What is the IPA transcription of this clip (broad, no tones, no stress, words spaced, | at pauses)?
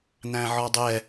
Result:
n̪æ̃ʕɔdˤɛ